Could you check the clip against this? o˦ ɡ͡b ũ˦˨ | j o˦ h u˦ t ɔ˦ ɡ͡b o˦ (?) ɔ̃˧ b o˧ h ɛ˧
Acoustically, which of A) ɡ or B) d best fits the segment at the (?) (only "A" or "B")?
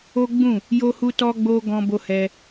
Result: A